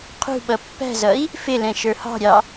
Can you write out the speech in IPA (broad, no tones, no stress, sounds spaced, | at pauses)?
qʰ ṳ ɓ ʌ pː æ̤ z ʌ i̯ | f ɪ l ɛ̃ ʃ ə˞ h ɑ̤ ɾʲ ɑ